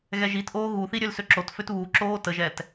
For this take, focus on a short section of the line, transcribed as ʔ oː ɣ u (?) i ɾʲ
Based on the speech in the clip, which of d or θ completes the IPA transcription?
θ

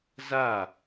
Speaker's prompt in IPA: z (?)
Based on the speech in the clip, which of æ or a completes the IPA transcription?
a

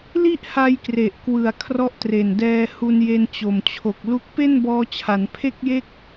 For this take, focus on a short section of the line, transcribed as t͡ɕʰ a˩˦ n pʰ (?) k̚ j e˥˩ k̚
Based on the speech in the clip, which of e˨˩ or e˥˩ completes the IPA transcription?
e˥˩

